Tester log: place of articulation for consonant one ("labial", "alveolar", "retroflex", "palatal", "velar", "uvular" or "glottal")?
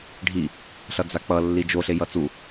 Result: retroflex